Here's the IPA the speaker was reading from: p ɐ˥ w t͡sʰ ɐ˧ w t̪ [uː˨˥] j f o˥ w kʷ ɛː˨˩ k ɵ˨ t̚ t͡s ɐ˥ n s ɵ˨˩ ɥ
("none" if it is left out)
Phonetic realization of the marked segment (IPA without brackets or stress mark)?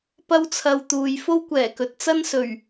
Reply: uː˨